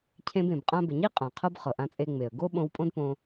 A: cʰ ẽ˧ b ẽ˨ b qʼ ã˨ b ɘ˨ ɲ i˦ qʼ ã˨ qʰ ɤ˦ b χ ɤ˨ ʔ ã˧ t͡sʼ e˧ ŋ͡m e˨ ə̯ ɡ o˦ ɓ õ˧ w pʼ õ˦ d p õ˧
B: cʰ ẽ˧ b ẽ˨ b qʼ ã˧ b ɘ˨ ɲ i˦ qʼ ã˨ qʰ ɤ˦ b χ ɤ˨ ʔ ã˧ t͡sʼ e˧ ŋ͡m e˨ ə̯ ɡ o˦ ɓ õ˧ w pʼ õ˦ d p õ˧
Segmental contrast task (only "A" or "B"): B